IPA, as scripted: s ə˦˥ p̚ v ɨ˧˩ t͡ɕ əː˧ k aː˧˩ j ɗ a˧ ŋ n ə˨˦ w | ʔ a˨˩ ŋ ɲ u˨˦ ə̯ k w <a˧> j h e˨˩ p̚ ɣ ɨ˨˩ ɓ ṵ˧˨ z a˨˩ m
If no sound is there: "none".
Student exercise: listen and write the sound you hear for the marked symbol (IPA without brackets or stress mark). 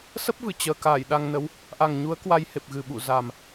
a˧